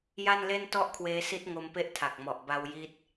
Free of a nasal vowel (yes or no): yes